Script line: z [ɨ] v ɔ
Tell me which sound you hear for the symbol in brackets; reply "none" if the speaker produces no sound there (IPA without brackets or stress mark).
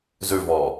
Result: ʉ